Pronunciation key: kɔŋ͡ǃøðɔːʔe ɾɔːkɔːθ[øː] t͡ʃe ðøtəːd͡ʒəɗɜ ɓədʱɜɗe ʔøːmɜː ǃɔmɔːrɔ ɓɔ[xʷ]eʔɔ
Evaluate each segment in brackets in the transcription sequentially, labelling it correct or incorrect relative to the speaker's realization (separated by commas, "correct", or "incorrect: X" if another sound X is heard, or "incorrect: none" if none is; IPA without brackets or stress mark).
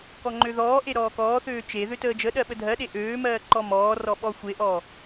correct, correct